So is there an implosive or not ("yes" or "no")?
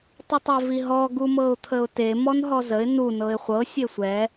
no